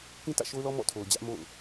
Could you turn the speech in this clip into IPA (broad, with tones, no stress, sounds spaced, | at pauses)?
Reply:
k ĩ˦ t ä̰˦˨ ʃ o˦ ʊ̯ l ɔ˦ m ɔ̰˦˨ tʰ o˨ ʊ̯ d͡ʑ ä˦ ʔ m o̰˦˨ ʊ̯